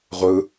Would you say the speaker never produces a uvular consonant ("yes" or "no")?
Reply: no